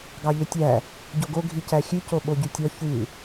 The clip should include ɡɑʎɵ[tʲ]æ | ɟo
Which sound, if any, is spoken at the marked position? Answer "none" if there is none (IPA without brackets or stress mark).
tʲ